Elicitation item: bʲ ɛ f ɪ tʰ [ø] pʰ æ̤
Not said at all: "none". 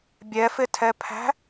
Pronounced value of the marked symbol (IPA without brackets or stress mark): ɛ